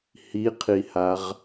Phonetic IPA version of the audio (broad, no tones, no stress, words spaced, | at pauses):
hiqʰihaʁ